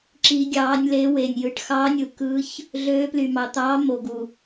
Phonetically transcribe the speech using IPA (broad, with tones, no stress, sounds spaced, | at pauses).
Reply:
ǁ i˧˥ ɡʲ ɑː˧˥ nʲ l e˧˥ w e˨ nʲ j ɯ˨ ʈ x ɑ˧˥ nʲ ɯ˨ k ɯ˧˥ ç | ɮ øː˧˥ p l y˨ m ɑ˨ t̪ ɑː˧˥ m o˨ ɡ u˨